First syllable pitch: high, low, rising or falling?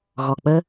low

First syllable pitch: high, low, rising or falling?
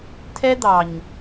high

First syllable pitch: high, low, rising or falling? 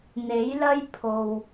rising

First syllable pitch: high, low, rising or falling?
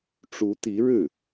rising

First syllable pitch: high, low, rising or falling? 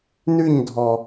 falling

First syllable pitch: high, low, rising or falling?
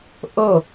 falling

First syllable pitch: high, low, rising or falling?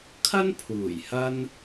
high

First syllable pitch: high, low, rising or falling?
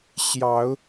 rising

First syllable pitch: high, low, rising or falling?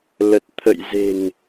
low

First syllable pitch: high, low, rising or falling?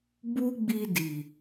high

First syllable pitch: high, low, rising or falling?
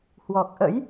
low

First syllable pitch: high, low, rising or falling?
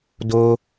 low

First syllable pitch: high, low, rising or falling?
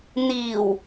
low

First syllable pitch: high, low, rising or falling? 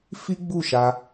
high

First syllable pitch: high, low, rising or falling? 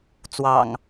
low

